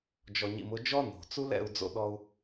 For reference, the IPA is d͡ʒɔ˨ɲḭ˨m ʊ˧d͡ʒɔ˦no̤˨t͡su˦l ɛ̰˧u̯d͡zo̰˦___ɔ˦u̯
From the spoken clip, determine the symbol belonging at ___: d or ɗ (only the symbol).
ɗ